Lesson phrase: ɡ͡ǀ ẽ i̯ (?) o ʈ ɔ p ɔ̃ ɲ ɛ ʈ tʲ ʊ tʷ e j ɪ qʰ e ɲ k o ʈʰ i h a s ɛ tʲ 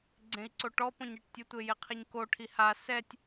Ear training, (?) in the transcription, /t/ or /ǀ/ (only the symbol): ǀ